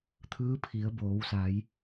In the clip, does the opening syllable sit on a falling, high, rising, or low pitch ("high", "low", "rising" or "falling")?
rising